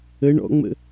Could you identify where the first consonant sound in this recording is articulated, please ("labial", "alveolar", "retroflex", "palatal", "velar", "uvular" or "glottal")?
retroflex